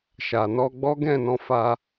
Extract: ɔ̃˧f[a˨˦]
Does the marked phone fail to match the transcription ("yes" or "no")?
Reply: yes